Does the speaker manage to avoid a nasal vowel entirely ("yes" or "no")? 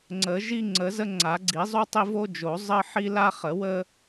yes